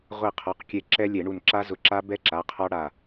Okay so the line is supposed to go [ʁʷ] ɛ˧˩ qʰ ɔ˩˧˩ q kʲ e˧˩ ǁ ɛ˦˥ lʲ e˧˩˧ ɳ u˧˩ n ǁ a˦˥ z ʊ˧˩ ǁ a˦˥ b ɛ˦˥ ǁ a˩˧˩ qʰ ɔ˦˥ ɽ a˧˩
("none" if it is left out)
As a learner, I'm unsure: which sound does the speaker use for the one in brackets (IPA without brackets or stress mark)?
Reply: ʁʷ